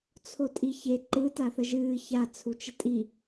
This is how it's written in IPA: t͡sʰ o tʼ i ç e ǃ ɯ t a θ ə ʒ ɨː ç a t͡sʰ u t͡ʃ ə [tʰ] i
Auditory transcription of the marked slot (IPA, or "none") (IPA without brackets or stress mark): tʼ